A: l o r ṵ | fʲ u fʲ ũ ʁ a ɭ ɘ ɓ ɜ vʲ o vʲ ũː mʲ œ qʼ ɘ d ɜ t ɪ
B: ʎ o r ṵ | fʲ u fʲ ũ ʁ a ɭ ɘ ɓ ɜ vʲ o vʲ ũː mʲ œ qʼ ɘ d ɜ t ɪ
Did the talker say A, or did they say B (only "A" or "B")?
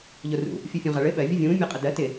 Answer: B